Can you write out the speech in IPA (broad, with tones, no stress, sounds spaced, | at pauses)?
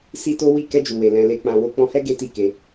s i˦ t o˦ w i˦˨ k ɛ˧ d͡ʒ u˨ w e˨ l ɛ̃˧ l e˧ k͡p ã˧ w o˦ k͡p ɔ̃˧ h ɛ˦ ɡ e˦ t i˦˨ k e˧